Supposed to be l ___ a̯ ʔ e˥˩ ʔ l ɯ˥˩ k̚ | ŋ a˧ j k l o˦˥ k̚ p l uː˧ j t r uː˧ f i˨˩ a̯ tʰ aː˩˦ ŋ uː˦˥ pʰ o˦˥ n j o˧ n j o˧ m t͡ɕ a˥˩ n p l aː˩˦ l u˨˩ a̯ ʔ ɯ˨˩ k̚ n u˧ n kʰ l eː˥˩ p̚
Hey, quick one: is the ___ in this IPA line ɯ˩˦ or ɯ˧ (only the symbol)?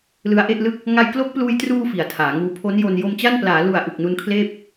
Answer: ɯ˧